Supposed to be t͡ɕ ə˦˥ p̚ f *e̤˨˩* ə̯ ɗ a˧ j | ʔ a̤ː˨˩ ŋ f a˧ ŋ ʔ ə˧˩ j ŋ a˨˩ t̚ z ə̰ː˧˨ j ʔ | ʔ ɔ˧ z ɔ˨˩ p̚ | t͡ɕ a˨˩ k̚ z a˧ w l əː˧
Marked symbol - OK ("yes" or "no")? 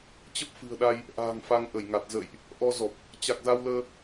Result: no